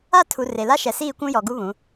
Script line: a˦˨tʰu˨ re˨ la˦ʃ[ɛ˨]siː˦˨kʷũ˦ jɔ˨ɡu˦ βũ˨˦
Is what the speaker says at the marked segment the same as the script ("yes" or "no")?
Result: yes